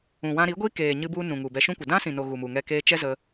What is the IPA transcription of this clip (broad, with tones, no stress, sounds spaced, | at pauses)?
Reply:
ũ˨ w ã˧ ɾ i˨˦ ɡʷ i˦ k eː˨ ɲ ɨ˧ b u˧ n ũ˨ ŋ u˨ b ɛ˧ ʃ ũ˦ kʷ ə˨ d ã˦ s ĩ˨ n o˨ ɣ u˨ m u˨ ŋ ɛ˧ k eː˧ t͡ʃ ɛ˦ z ə˦